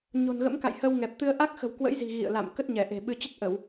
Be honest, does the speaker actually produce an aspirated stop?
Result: no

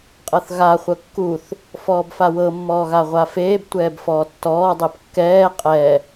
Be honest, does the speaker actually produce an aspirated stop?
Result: no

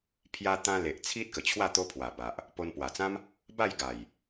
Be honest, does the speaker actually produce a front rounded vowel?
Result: no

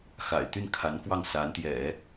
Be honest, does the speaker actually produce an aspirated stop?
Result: yes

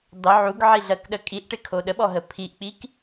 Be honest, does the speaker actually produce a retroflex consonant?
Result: yes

